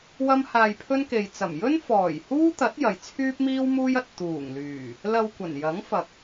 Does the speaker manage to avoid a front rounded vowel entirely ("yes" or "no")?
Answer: no